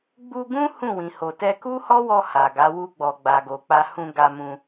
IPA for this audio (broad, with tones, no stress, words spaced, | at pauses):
ɡ͡bu˧ ɡũ˦ hũ˦˨wĩ˨ho˨ tɛ˧ku˦hɔ˦wɔ˧ ha˨ɡa˨˦ wu˧ɡ͡bɔ˨ɡ͡ba˨ɡo˨ k͡pa˧hũ˧ɡa˧mũ˧